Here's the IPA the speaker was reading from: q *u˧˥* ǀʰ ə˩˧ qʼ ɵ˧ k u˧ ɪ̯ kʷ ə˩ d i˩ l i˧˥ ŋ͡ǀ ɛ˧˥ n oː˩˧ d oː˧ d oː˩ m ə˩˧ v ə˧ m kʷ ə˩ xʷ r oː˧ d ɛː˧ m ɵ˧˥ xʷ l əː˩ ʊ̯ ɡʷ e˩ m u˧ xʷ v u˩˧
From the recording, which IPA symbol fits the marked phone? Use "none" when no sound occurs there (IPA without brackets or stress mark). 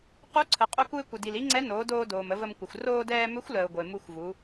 u˧˥